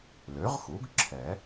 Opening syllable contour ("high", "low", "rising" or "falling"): rising